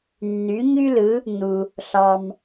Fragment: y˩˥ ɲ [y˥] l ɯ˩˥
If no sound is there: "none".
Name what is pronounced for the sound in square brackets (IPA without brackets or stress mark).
y˥